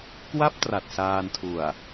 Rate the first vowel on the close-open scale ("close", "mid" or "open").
open